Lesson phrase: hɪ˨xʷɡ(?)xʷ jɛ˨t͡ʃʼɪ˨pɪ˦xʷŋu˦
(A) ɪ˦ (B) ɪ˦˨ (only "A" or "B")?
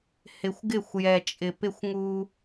B